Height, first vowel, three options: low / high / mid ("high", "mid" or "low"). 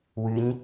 high